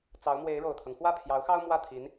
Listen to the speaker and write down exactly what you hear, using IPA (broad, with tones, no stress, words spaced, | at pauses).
t͡sɑ˧˥ʊ̯mwe˧˥ɪ̯ɻo˨˩ʊ̯t̪ʰɤ˦ŋ xwä˥˩pʰjɑ˧˥ʊ̯xɑ˥ʊ̯ mwä˥˩t̪ʰi˧˥n